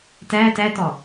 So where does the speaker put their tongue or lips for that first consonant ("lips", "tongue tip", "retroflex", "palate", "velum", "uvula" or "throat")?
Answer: tongue tip